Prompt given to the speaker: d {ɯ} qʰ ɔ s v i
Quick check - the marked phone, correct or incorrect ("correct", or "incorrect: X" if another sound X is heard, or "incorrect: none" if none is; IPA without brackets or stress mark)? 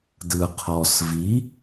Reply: correct